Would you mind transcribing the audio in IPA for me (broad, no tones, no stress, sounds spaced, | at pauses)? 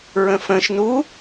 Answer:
ɹ ə̃ f ə̃ ʃ n u